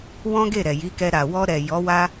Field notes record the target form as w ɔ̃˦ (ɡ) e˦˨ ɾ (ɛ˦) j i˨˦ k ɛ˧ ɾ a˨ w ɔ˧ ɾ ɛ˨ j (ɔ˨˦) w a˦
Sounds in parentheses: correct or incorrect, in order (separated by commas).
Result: correct, incorrect, correct